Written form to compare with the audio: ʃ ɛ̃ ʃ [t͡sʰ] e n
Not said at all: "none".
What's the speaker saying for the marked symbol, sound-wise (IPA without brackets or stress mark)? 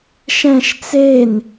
t͡s